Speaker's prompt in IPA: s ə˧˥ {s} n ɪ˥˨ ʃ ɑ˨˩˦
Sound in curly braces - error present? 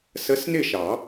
no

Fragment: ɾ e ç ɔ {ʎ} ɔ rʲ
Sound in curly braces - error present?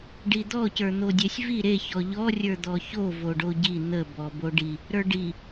no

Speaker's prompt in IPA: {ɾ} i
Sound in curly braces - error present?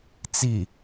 yes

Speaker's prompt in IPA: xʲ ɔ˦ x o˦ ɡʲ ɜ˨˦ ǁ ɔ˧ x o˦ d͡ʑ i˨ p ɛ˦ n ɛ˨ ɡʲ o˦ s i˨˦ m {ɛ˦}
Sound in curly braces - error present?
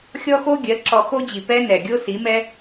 no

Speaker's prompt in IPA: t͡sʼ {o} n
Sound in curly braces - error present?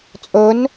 yes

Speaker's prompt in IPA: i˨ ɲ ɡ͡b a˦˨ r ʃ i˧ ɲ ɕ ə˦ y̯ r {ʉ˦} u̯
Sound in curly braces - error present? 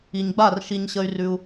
no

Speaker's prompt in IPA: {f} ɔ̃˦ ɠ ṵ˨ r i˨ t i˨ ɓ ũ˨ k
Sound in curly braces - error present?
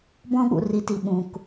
yes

